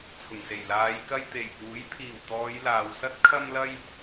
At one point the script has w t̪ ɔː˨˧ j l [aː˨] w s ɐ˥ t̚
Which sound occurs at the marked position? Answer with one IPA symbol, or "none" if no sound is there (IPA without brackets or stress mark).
aː˨